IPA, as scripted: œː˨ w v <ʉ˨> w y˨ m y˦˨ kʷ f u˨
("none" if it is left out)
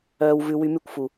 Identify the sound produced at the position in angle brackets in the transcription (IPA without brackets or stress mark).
ʉ˨